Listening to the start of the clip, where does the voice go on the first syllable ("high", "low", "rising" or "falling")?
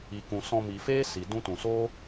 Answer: low